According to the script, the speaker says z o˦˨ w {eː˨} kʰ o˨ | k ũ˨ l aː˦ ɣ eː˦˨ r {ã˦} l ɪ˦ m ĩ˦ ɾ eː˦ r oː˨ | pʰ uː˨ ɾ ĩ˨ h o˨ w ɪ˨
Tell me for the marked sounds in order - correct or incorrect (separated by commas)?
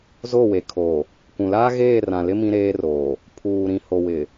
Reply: incorrect, incorrect